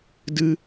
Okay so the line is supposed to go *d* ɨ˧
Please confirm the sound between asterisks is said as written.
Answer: yes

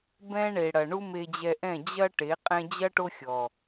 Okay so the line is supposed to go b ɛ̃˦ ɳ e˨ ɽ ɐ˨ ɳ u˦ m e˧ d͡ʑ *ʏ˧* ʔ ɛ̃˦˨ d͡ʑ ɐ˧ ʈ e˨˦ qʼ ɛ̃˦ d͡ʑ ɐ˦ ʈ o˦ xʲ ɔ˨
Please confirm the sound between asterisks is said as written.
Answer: no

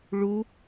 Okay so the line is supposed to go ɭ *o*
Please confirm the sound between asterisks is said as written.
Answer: no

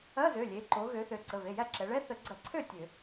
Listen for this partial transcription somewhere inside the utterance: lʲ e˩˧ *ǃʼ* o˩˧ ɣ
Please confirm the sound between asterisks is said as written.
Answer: no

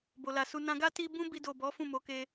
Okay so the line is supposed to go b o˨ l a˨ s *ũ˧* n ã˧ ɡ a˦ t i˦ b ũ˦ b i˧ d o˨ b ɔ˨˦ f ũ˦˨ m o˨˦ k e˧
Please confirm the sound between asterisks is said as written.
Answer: no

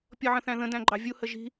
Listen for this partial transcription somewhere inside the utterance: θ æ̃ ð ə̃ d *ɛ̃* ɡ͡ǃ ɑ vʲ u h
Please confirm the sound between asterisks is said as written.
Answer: no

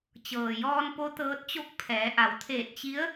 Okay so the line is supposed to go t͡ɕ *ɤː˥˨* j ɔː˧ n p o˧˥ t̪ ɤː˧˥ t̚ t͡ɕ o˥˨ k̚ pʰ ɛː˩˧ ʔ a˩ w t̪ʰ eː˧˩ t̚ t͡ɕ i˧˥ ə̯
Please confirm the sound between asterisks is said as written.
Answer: no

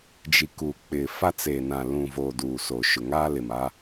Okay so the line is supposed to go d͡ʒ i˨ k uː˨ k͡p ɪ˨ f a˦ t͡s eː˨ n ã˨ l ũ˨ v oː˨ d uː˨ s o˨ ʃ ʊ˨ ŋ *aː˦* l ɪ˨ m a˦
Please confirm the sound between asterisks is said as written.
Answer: yes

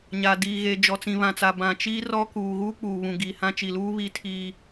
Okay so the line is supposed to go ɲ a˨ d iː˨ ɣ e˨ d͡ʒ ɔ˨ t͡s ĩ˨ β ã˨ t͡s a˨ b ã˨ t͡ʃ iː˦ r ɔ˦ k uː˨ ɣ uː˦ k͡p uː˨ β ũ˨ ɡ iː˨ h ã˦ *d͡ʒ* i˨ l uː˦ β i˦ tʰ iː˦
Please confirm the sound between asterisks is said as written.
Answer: no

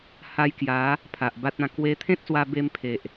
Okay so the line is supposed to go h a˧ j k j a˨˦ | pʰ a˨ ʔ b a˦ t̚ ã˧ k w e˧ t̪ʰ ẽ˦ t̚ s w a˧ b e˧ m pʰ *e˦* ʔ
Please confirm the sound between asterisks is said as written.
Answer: no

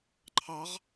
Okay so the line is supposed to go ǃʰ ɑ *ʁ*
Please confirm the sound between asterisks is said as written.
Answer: yes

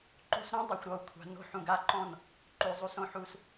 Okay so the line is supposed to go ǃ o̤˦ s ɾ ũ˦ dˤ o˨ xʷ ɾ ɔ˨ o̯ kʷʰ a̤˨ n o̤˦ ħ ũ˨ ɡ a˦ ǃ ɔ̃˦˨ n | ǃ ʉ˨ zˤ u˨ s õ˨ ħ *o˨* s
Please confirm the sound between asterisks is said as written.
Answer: no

